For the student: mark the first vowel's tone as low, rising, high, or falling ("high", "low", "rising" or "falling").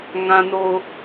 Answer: low